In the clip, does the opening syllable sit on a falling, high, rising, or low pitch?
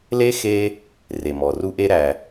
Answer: high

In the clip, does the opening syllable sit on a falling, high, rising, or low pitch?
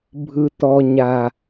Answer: low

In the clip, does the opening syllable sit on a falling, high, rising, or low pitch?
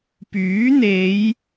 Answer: rising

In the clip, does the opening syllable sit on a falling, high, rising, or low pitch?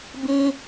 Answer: high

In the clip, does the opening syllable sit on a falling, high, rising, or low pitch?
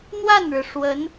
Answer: falling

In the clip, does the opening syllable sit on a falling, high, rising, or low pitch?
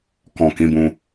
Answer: low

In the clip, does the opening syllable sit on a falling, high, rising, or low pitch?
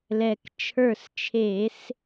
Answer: low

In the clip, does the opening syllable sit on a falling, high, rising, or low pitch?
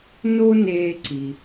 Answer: high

